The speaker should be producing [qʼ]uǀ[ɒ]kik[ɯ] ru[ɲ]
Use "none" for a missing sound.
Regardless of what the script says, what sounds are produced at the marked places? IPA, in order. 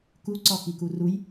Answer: k, ɒ, u, j

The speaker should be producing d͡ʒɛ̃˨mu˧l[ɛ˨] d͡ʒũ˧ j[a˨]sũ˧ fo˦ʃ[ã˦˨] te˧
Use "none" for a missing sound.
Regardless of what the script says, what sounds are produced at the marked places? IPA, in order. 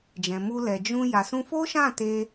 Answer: ɛ˨, a˨, ã˦˨

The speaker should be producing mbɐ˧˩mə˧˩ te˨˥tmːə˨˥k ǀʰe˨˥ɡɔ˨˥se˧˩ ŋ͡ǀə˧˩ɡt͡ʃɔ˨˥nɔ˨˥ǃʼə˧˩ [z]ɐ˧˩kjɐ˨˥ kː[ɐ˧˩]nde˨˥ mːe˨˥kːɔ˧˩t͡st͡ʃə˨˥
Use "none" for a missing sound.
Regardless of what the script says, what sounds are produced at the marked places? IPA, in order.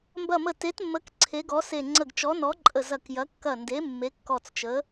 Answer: z, ɐ˧˩

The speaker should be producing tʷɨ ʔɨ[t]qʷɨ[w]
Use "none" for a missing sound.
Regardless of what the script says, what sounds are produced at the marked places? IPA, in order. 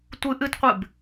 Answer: t, b

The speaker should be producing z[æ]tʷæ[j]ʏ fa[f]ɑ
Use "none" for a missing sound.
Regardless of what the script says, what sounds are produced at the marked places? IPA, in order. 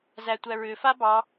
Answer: æ, ɹ, b

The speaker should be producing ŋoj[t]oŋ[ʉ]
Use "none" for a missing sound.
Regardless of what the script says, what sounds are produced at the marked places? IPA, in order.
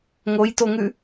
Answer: t, ʉ

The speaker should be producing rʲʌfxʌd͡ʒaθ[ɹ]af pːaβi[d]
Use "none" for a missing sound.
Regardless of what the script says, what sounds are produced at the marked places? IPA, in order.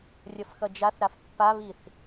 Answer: ɾ, θ

